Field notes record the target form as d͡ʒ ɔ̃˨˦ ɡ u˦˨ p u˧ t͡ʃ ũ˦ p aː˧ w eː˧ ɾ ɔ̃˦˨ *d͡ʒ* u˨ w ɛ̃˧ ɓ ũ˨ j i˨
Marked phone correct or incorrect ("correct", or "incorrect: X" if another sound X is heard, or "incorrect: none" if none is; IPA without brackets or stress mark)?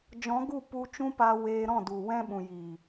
incorrect: d